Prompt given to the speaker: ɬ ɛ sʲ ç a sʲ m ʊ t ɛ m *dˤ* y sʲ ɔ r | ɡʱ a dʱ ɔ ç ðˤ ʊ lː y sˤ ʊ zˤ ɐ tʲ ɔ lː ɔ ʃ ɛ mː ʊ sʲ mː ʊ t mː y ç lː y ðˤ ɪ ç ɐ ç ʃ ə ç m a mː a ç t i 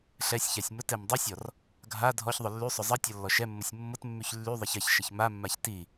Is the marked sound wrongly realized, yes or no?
no